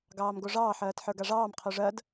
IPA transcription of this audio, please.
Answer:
ɡ ɑː m ɡ o ʐ ɑː ħ ɜː t ħ ə˞ ɡ a ʐ ɑː m qʰ o ʐ ɜ d

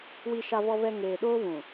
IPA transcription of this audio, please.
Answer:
w i˨ ʃ a˨ v ɔ˨ v ɛ˨ ŋ eː˨ ɗ oː˦ β ũ˨

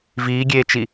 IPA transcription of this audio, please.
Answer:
v iː ɡʲ eː t͡ʃ i

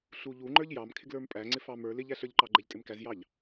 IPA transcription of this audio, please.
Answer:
ɬ u ʎ u ŋ͡ǃ ə˞ ʎ j ɑ m kʰ ɪ ɡ l ə˞ m pʼ æ ŋ͡ǀ ɪ f ɑ m ə˞ l ɪ ʎ æ ɬ ə˞ ʎ ǃ ɑ ɡ͡ǃ ɛ ʎ tʼ ɪ m k æ z j ɑ ʎ

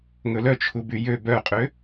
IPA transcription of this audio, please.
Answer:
ŋ ɵ l œ t͡ʃʰ u b y j ø b œ qʼ ø

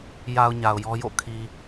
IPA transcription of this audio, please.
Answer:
j a˨ ʊ̯ ɲ a˨ ʊ̯ j ɔ˦ j o̰˦˨ kʰ i˨

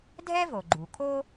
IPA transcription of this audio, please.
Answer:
dʱ ɛ˥ v o˩ ɡ͡ǃ u˩ kʰ o˥

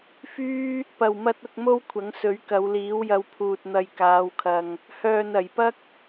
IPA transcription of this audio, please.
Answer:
f yː˥ | p ɐ˨˩ w m ɐ˧ t̚ ʊ˧ k̚ m o˥ w kʷʰ ɐ˨˥ ŋ s ɵ˨˥ ɥ k ɐ˨˧ w l iː˨˥ w j ɐ˧ w pʰ uː˨ t̚ n̪ ɐ˨ j k aː˨˧ w kʰ ɐ˨ ŋ | h œː˨ n ɐ˨˩ j p ɐ˥ k̚

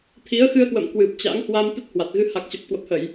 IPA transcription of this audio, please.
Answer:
t̪ʰ i˨˦ ə̯ x ɨ˧ ə̯ k w ə̰˧˨ m k w ɨ˨˩ p̚ t͡ɕ a̰˧˥ ŋ h w a˧ m t̪ ə˦˥ t̚ h w a˨˩ t̚ ɣ ɨ˧ h a˨˩ k̚ t͡ɕ ə˨˩ p̚ k w ə˨˩ p̚ h ə˧˩˨ j

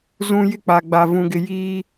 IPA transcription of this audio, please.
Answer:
z ũ˨ j ɪ˦˨ k͡p a˨ ɡ͡b a˨ v ũ˨ ɡ ɪ˨ j iː˦

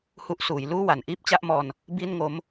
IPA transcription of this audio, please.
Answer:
h u˦˥ ʔ s uː˩˦ j l uː˥˩ w a˩˦ n ʔ iː˦˥ p̚ t͡ɕ a˥˩ ʔ m ɔː˧ n | b i˥˩ n ŋ o˦˥ m

